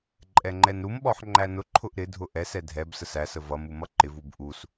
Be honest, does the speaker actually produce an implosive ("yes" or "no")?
yes